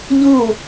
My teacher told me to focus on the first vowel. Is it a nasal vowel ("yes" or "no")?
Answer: no